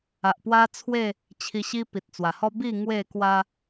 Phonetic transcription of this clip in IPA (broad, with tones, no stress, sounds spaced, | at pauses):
a˨ ʔ p w a˦ t͡sʰ w e˥˧ | t͡ɕʰ i˧ ɕ i˦ p i˨ t̚ t͡s w a˨˩ h ɔ˦ b i˥˧ ŋ w e˥˧ k w a˦